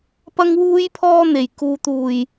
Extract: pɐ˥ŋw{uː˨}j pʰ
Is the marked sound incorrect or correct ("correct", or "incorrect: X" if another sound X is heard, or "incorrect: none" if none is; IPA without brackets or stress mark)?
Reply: incorrect: uː˥